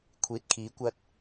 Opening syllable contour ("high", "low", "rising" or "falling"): rising